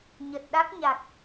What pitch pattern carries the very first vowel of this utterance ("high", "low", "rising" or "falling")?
low